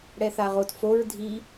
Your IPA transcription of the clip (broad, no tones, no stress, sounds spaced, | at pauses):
ɽ ɛ θ a ʁ o t f o ɹ dʱ i